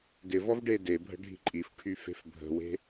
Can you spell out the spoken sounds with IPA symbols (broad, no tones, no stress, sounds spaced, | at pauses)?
d ɪ v ɔ v ɖ e d e bʱ ə̤ ɖʱ i̤ ǃʼ i f ʈʰ y f e̤ f bʱ ə̤ w e̤